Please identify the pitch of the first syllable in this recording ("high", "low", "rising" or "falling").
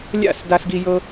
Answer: falling